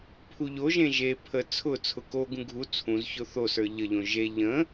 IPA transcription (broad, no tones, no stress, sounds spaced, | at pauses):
pʰ u ʎ o ʒ ẽ ʒ e pʰ ə t͡sʰ ʊ t͡sʰ ʊ k o ɡ ũ ɡʱ u t͡sʰ ũ z ç ʊ θ o s ə˞ ʎ ə ʎ õ ʒ e ʎ ə̃